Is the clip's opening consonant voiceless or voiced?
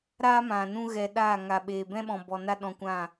voiced